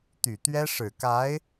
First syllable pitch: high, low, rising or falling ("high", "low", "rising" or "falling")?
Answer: low